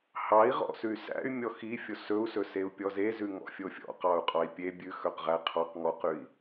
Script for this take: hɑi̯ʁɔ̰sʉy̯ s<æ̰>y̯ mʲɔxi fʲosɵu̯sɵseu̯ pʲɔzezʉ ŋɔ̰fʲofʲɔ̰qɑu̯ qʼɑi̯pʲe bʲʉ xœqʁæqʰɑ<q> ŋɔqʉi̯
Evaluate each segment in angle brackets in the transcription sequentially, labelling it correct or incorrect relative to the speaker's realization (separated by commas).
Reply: correct, correct